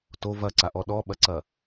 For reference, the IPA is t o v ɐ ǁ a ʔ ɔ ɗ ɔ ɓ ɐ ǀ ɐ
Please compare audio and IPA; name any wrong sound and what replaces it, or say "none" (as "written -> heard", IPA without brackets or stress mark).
ǁ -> ǀ